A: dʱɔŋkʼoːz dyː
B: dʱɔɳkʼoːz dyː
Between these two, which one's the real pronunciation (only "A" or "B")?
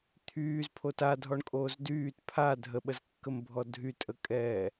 B